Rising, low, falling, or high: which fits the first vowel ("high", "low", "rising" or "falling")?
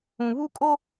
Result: low